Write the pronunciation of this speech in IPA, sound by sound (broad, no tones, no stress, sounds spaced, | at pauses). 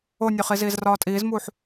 o nʲ o χ i z iː z r ɒː tʼ iː z m uː ħ